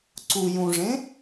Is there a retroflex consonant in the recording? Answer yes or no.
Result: yes